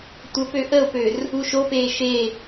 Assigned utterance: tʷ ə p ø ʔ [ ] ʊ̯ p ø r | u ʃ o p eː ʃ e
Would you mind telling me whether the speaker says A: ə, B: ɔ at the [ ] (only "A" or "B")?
A